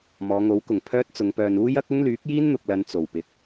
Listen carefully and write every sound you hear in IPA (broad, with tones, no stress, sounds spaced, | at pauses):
m ɔː˨˧ ŋ o˨˥ w k ʊ˨˩ ŋ pʰ œː˥ t̚ t͡s ʊ˨˧ ŋ p œː˨ n uː˥ j ɐ˥ k̚ ʊ˥ ŋ l yː˨˥ k̚ j iː˥ n n̪ ʊ˨ k̚ l ɐ˧ n t͡s o˨˩ w p ɪ˨˥ k̚